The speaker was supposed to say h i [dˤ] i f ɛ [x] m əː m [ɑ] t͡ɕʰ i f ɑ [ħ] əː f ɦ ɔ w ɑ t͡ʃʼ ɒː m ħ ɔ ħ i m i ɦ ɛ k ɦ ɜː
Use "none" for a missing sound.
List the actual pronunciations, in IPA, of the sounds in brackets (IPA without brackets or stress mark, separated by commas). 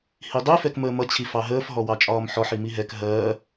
dˤ, k, ʌ, ɦ